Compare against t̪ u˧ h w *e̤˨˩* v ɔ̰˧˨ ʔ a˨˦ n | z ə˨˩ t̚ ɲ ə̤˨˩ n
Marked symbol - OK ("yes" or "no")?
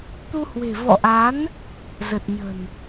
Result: yes